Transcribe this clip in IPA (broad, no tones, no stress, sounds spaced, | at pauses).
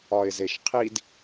ɒ ɪ̯ z e ʃ qʰ i d